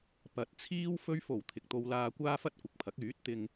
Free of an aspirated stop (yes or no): no